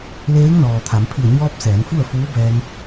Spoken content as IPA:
l eː˧˥ ŋ n ɔː˩ t̪ʰ a˩˧ m pʰ i˧˩ ə̯ ɲ ɔː˧ p̚ s ɛː˩˧ n f u˥˨ ə̯ f uː˧˥ b ɛː˧ ŋ

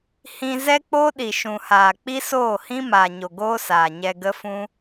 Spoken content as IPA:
h ĩ˧ z ɛ˦ k͡p o˦ ɗ i˨ ʃ ũ˨ h aː˨ k͡p i˦ s oː˦˨ h ĩ˦ m aː˨ ɲ o˨ ɡ oː˦ s aː˨ ɲ ɛ˧ ɡ ə˦ f ũ˦

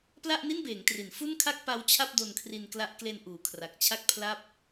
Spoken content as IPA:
p l a˥˩ ʔ n i˥˩ n b eː˩˦ ŋ t r i˩˦ n f u˥˩ n kʰ a˥˩ k̚ p a˦˥ w t͡ɕʰ a˥˩ p̚ d o˧ n kʰ r i˧ n k l a˦˥ ʔ k l e˧ n ʔ uː˩˦ kʰ r a˨˩ k̚ t͡ɕʰ a˥˩ k̚ pʰ l a˥˩ p̚

